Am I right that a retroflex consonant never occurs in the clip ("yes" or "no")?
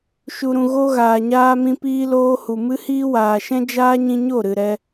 yes